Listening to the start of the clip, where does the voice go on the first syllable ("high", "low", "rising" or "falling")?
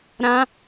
high